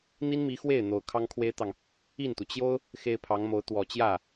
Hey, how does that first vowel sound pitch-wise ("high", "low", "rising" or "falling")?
high